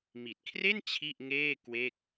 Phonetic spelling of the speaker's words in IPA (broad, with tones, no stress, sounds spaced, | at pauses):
m i˨˩ t̚ kʰ r e˥˩ n t͡ɕʰ i˥˩ ʔ ŋ eː˥˩ k w e˥˩ k̚